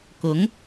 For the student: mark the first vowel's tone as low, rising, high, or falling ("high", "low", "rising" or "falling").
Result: rising